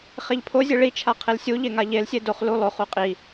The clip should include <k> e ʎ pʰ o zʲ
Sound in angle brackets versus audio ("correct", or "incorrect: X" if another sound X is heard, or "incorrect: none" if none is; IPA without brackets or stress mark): incorrect: χ